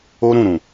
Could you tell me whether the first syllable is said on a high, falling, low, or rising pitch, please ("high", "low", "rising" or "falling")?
high